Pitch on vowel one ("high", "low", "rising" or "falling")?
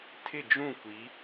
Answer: falling